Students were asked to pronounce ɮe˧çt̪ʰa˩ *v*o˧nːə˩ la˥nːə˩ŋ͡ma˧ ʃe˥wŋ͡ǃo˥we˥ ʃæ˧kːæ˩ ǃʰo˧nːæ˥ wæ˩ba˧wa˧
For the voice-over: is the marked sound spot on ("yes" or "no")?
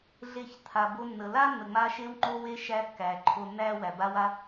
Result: no